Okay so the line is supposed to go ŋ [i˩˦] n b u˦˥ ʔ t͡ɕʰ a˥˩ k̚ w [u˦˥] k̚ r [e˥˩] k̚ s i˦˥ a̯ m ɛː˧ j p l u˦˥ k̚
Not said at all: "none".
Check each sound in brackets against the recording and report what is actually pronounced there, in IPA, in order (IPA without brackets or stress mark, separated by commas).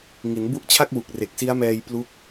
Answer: i˩˦, u˨˩, e˨˩